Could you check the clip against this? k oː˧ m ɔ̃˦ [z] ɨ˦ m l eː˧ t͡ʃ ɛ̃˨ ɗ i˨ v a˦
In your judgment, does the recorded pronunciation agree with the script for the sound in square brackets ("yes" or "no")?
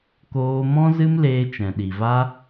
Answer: yes